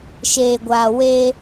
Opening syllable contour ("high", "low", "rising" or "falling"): low